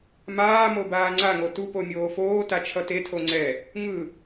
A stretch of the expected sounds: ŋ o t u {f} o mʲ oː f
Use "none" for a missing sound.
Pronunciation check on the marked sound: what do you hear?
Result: p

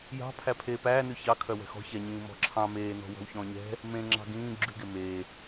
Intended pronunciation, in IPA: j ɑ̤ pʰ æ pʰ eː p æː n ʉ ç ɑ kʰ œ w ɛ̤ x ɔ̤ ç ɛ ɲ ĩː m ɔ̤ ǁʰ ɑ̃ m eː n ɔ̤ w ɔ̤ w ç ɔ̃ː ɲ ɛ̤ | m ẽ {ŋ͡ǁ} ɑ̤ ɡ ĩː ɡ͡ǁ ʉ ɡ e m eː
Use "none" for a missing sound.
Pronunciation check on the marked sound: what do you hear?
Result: ŋ͡ǁ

